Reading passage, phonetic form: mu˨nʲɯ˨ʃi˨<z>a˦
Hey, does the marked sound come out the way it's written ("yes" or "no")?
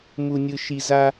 yes